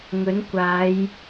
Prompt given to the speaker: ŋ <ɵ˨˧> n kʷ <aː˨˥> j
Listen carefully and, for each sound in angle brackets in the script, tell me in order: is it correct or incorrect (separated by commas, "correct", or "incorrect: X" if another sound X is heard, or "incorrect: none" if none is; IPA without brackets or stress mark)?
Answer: incorrect: ɵ˨˥, incorrect: aː˨˧